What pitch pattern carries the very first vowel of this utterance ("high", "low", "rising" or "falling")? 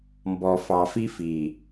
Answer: low